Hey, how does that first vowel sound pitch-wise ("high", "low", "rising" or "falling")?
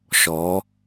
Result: rising